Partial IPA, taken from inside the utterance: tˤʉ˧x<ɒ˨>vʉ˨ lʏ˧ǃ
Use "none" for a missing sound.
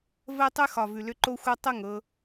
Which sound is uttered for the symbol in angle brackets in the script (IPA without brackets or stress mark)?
ɒ˨